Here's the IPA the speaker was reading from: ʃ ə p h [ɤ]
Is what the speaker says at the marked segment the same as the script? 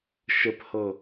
yes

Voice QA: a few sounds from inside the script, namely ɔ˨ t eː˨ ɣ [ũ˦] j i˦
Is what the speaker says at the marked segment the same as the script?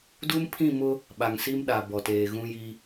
yes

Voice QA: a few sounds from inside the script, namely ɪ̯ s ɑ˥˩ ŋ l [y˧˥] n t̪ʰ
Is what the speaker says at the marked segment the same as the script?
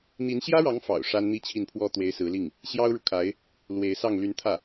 yes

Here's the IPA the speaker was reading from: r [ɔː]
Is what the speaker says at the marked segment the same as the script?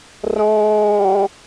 no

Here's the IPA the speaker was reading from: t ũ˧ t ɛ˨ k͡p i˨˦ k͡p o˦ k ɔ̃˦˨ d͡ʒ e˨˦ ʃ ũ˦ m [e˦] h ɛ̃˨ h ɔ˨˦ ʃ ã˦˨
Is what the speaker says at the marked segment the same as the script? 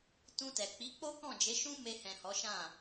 no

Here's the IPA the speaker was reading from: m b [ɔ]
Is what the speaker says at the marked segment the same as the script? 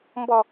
yes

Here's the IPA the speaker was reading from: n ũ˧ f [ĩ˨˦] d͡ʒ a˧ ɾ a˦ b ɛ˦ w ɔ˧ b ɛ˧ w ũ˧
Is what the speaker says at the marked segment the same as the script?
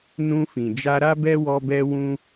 no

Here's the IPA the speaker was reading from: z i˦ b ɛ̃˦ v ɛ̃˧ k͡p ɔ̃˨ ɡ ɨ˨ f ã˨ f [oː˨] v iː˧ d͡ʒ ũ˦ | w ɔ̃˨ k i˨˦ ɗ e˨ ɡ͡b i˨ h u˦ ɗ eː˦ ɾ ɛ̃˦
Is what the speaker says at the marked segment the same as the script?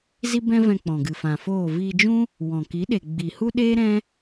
no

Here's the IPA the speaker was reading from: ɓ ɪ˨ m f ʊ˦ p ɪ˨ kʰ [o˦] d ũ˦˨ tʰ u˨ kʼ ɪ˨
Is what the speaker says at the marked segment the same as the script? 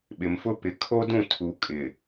yes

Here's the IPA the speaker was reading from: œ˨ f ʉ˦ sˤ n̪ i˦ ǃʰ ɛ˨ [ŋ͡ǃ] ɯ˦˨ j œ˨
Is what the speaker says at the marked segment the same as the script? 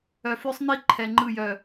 yes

